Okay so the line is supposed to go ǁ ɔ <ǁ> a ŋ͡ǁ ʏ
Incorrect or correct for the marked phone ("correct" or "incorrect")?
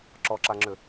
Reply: correct